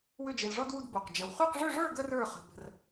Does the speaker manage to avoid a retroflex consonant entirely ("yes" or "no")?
no